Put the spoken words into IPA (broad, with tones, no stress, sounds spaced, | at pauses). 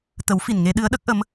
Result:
t̪ ə˨˩˦ w f i˨˩ n ŋ e˧ ɗ ɨ˧˥ ə̯ ɗ ə˦˥ k̚ ʔ ə˧˥ m